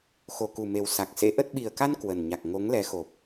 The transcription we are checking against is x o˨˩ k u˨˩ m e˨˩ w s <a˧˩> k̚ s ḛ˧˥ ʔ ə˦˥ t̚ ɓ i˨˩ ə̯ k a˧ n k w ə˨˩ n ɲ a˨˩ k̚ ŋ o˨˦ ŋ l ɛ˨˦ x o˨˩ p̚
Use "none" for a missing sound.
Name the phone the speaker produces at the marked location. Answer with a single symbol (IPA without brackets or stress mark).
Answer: a˨˩